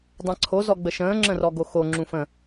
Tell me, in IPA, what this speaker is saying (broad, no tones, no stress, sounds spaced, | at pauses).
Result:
dˤ ã ǀʰ o z ɔ ɡ͡b ə ʃ ə̃ː ŋ͡ǁ ə̃ r ɔ ɡ o x o ŋ͡ǁ ũ f ə̃